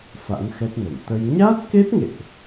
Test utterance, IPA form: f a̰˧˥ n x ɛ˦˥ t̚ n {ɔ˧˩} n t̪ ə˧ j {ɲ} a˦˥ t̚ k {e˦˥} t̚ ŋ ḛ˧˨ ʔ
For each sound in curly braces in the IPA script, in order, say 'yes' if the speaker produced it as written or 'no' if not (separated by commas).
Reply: no, yes, yes